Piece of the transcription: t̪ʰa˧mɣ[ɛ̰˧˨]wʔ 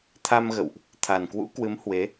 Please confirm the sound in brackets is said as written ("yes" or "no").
no